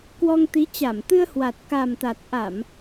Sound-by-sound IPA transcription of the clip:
k w ɔ˧ ŋ t̪ i˨˦ t͡ɕ a˧˩ m t̪ ɨ˧ ə̯ h w a˨˩ t̚ k a˨˩ m t̪ a˨˩ t̚ ʔ a˧˩˨ m

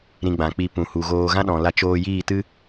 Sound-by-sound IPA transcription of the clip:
ɾ ĩ˧ ɡ͡b ã˨ k͡p i˧ p ũ˨ h u˨ ɣ oː˧ ɣ ã˦ ɗ ɔ̃˨ l a˧ t͡ʃ oː˧ j iː˦˨ t ɨ˦

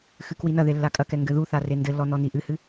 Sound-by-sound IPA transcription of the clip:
x ɨ k w i n ɐ ð e lː a kʼ ɐ k ɛ ŋ ɡ ɘ ð u θ a r e n d ɘ lː ɔ n ɔ n i ʔ ɨ h ɨ

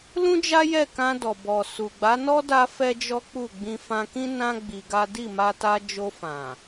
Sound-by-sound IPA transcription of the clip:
l ũ˦ d͡ʒ a˦ j ɛ˦˨ k ã˧ d ɔ˨ b ɔ˨ s u˨ ɡ͡b a˨˦ n ɔ˦ d a˦ f ɛ˦ d͡ʒ ɔ˦ k͡p u˦˨ ɡ͡b ĩ˧ f ã˧ k ĩ˦ n ã˦ ɡ͡b i˧ ɡ a˦ d i˦˨ m a˧ t a˧ d͡ʒ o˧ f ã˨

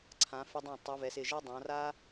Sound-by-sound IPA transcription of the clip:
ǀʰ ã˩˧ f ɪ˧ dˤ ɛ̃˧˩ tˤ u˩˧ v ɛ˩˧ s ɪ˧˩ ʒ a˥ dˤ ã˩˧ r a˥

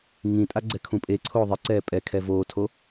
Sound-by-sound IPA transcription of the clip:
ŋ ĩ tʼ a ɡ͡ǀ ɛ kʰ ũ pʼ e ǀʰ oː ðˤ ɪ ǀ ɛː pʼ ɛ kʰ ɛ v oː tʰ o

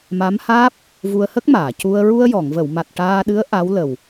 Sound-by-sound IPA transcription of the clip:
m a˧˥ m h aː˦˥ p̚ | v u˧ ə̯ h ə˦˥ k̚ m aː˨˩˨ c u˧ ə̯ ɹ u˧ ə̯ j ɔ˨˩˨ ŋ v ə˨˩˨ w m a˨˩ t̚ ʈ aː˧ ɗ ɨ˧˥ ə̯ ʔ a˧˥ w l ə˨˩ w

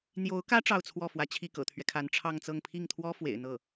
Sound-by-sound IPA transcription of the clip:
n̪ j o˧˥ ʊ̯ k ä˥ ʈ͡ʂ ɑ˥˧ ʊ̯ t͡sʰ w ɔ˥˩ f w ä˧˥ t͡ɕʰ i˥˩ k ɤ̰˨˩ t̪ʰ ɥ ɛ˦ kʰ a˧˥ n ʈ͡ʂʰ ɑ˥˧ ŋ t͡s ɤ˥˧ ŋ pʰ i˥˩ ŋ t̪ʰ w ɔ˥ f w ḛ˨˩ ɪ̯ n̪ ɤ˥˩

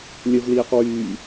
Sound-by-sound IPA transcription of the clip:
lʲ ə v l iː q w yː

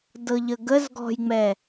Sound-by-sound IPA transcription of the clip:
d ɤ ʎ ə ɡ ə z ɡ ɔ̤ j ŋ͡m ɛ

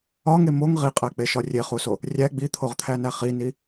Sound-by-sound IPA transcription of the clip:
ɒ ŋ e m o ŋ ʁ i qʼ æ k͡p e ʃ ɒ rʲ e χ u s o | rʲ æ ɡ͡b i t̪ʰ o ʁ t̪ʰ æ n æ χ i n i

